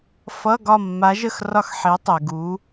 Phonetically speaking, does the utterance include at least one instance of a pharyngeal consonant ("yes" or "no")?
yes